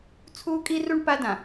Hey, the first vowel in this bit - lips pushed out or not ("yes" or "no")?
yes